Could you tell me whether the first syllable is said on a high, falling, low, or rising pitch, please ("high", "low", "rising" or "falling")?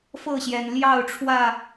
falling